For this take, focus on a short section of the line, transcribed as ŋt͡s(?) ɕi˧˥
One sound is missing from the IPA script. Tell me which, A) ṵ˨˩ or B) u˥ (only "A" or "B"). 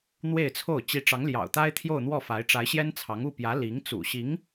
A